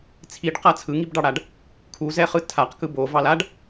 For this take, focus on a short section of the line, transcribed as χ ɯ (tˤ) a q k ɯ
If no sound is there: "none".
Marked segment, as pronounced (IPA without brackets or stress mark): tʰ